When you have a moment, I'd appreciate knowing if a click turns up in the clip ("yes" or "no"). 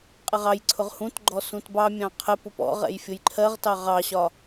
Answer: yes